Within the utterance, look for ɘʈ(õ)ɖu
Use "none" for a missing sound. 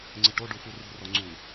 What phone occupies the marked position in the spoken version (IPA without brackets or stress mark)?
o